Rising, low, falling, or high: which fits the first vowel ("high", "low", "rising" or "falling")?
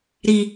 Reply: low